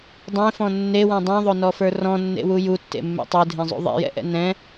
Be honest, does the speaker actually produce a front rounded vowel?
no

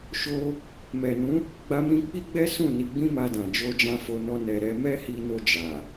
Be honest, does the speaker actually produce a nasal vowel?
yes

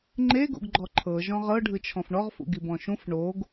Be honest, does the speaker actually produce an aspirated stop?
yes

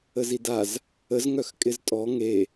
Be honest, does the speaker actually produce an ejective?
yes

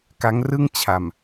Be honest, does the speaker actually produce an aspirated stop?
yes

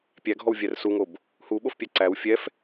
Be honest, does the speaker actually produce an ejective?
no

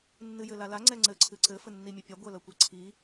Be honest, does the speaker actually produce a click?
yes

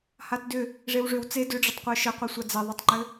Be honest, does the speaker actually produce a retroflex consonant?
yes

